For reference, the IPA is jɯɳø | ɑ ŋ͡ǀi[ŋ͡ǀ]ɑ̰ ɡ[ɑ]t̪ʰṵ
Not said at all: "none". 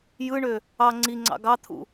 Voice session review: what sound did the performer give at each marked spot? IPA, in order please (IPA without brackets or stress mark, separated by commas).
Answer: ŋ͡ǀ, ɑ